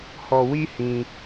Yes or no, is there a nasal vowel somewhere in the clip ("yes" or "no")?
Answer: yes